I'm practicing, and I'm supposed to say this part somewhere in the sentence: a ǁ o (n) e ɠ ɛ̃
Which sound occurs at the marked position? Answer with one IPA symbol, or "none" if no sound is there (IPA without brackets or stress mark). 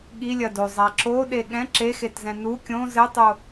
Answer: ɗ